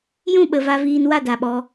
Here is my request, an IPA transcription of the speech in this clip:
j ũ˦˨ ɓ ə˨ v a˧ v iː˧ n w a˦˨ d a˨ ɓ ɔ˧

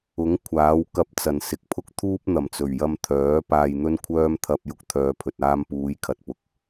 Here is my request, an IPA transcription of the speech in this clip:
ʊ˨˥ ŋ kʷʰ aː˨˥ w k ɐ˧ p̚ t͡s ɐ˨˩ n s ɪ˨ k̚ pʰ ʊ˥ k̚ t̪ʰ uː˥ p̚ n̪ ɐ˨˩ m t͡s ɵ˨˩ ɥ j ɐ˧ m t̪ʰ œː˨˥ p aː˨ j n̪ ɵ˧ n kʷʰ œː˧ m t̪ʰ ɐ˧ p̚ j ʊ˧ k̚ t̪ʰ œː˨˧ pʰ ɵ˨ t̚ aː˧ m p uː˨˧ j kʰ ɐ˨ t̚ p ʊ˨ k̚

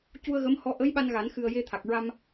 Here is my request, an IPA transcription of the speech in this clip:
c u˧ ə̯ ɣ ə˧˥ m h ɔ˧˥ ʔ ə˧˥ j ɓ a˧ n ɣ a˨˩˦ n x ɨ˨˩ ə̯ j e˧ t̪ʰ a˨˩ k̚ ɹ a˧ m

